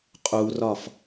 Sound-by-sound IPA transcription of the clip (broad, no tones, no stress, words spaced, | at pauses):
qʼurɒf